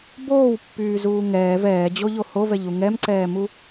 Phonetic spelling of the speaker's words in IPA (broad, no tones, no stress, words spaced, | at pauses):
boːwpːyːzuː ŋɛːv ɛːd͡ʑoʎo hovɛʎu ŋɛmǀɛːmu